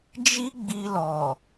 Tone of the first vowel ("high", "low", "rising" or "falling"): high